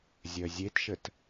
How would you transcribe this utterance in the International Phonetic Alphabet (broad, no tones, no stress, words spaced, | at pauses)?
zʲœzʲetʃət